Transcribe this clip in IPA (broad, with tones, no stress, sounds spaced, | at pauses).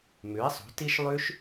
m ʉ˩˥ e̯ sˤ ṳ˩˥ t i˦˥ ʃ lˠ ʉ˦˥ ʃ